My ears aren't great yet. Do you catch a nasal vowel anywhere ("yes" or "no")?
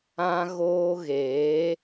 yes